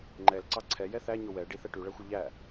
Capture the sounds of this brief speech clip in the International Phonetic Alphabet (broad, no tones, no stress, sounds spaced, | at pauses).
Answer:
ŋ͡ǃ ɛ l ǀ ɑ ǀʰ ɛ j ɛ θ æ ɲ o w ɛ ɖ i θ ɛ ʈ y ɭ æ xʷ e ʎ æ